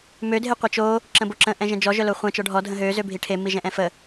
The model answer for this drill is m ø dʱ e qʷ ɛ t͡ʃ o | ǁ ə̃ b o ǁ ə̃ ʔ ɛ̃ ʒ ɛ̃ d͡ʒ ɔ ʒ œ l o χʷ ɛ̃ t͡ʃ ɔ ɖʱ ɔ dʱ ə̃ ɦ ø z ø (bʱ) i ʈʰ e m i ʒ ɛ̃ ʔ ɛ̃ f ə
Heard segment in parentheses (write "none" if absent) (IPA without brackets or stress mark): bʱ